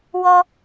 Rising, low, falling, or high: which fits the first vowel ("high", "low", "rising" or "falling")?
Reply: high